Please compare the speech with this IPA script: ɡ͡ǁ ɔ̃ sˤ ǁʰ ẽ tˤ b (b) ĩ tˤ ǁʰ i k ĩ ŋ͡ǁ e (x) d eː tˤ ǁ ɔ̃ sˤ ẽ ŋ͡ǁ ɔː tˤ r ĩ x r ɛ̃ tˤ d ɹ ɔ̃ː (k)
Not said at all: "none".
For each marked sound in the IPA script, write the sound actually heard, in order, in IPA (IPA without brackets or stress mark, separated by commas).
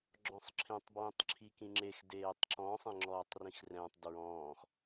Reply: w, x, x